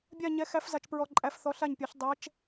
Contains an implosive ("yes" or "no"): no